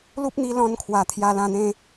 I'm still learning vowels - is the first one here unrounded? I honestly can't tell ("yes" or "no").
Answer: no